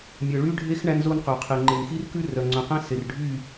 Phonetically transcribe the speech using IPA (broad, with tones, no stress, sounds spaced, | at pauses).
mʲ œ˨ ɭ y˦ ɖʱ e˦ x ɳ æ˦ n z o˦ n q œ˨ qʰ e˨ ŋ͡ǃ e˨ n x i˦ r k ʉ˦ r œ˨ ŋ͡ǀ œ̃˨ q æ̃˦ s e˨ r ɖʱ y˦˨